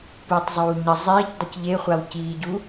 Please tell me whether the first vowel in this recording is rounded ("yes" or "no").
yes